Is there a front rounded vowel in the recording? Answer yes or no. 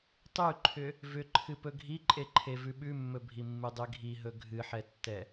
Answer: yes